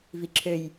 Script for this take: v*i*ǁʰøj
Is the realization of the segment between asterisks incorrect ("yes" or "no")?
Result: no